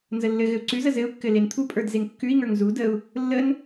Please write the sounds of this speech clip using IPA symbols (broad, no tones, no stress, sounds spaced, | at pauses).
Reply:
n z ə lː ɘ ɣ ɘ u̯ ǀ ʉ z ə z ɘ u̯ kː ɘ l e n t̪ʰ u pʼ ə˞ d z e ŋ kː ʉ i̯ ŋ ə˞ ŋ z u d ə u̯ | lː ə n